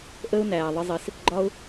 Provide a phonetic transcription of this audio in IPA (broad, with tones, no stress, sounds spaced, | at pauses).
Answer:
ʔ ə˦ ʊ̯ n æː˨ ðˤ ɪ˧ zˤ i˨ s | ɡ͡ǃ ɒ˦ ʊ̯